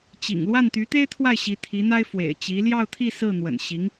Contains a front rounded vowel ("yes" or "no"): yes